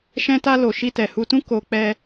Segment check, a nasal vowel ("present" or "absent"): present